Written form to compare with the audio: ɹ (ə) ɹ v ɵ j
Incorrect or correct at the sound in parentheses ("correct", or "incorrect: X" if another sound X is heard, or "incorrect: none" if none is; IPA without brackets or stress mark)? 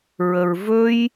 correct